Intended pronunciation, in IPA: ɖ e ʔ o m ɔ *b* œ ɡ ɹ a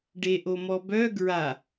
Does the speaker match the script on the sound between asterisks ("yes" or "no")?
yes